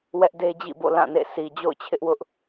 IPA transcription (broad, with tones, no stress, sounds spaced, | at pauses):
w ɛ˦ ʔ d e˦ d͡ʑ ḭ˦˨ b o̰˦˨ l ã˦˨ n ḛ˦˨ s i˨ d͡ʑ o̰˦˨ ʊ̯ t͡ɕʰ ɪ˦ ʔ w ʊ˦ ʔ